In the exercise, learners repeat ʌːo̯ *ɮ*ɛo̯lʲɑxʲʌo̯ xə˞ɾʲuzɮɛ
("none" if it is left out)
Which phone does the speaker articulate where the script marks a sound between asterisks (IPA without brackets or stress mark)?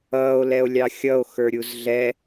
l